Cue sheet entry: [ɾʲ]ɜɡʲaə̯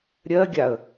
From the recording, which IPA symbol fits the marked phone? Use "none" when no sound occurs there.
ɾʲ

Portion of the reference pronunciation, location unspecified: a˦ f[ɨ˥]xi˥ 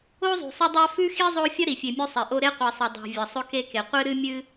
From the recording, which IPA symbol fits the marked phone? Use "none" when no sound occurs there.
ʉ˥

